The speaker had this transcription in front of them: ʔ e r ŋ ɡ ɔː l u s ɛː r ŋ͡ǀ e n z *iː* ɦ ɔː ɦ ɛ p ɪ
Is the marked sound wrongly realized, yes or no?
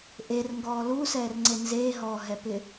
yes